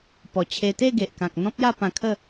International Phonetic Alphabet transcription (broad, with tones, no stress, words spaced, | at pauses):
pɔ˨˩t͡ɕʰe˧ t̪e˥˧ɡe˨ʔkã˨k̚ n̪ɔ̃˦p̚ja˥˧pã˧kʰə˥˧